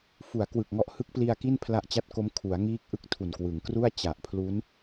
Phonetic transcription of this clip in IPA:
f u˩˦ a̯ k w ɯ˨˩ k̚ ŋ ɔ˦˥ ʔ h ɯ˦˥ k̚ p l i˧ a̯ k i˥˩ n pʰ l a˦˥ ʔ t͡ɕ a˦˥ t̚ k o˦˥ m kʰ u˩˦ a̯ ŋ iː˦˥ k̚ ʔ ɯ˥˩ k̚ tʰ u˨˩ n k w ɯ˩˦ ŋ k r u˥˩ a̯ t͡ɕ a˨˩ ʔ pʰ l u˦˥ n

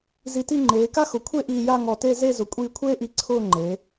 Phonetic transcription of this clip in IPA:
z i˧ t i˥˧ ŋ͡ǃ eː˩˧ k a˥ x ʊ˩˧ kʷʰ e˥˧ ʔ iː˧ j a˥˧ ŋ ɔ˧˩ t e˥˧ z e˥˧ z ʊ˩˧ kʷʼ iː˧ kʷʰ eː˥ ʔ i˧˩ ǀʰ ʊː˥˧ ŋ͡ǃ e˩˧

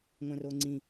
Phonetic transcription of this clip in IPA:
ŋʷ æ̃ r o ŋ͡ǀ ĩ

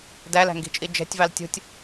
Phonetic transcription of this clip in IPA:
d æ l æ̤ ŋ ɡ i̤ t͡ʃʼ i d͡ʒ ɛ̤ tʲ v ɑ l tʲ ṳ tʲ

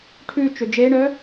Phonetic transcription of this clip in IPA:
ʈʰ ʉ t͡ʃ ø d͡ʒ e ɳ œ

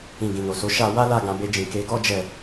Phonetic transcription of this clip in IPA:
ĩ˨ ɡ ĩ˨ n o˨ s o˨˦ ʃ a˧ w a˦ l a˧ ɡ ã˧ b e˧ d͡ʒ ĩ˨ k e˨˦ ɡ ɔ˦ d͡ʒ ɛ˧

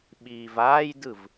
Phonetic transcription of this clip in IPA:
ɓ iː v aː j d ɯ v

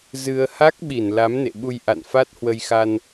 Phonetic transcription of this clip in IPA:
z ɨ˧ ə̯ h a˦˥ k̚ ɓ i˧˩ n l a˨˦ m n ḛ˧˨ ɓ u˧ j ʔ a̰˧˨ n f a˦˥ t̚ h w ə˧ j x a˧ n

